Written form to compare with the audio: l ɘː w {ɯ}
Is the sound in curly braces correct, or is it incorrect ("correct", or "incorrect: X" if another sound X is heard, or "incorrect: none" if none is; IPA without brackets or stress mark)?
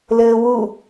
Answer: incorrect: u